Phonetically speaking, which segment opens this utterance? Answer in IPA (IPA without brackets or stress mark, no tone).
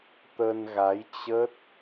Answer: t̪